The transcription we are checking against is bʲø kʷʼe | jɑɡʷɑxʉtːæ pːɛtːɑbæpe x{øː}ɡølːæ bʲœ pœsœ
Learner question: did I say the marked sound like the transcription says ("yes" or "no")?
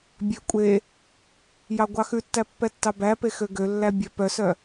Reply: no